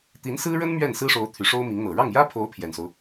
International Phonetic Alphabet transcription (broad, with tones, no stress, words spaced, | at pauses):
t̪i˧˥nsɹ̩˥ɻə˥n mɥɛ˥˩nsɹ̩˥ʂo˧˥ʊ̯ t̪ʰy˧˥ʂo˥ʊ̯mi˧˥ŋn̪ɤ˨˩ ɻɑ˥˩ŋjä˥pʰo˧˥ʊ̯ pʰjɛ˨˩nso˦ʊ̯